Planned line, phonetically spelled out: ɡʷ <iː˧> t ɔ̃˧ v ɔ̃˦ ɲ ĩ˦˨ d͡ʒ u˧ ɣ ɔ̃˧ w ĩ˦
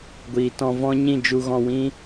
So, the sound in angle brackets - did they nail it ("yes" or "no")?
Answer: no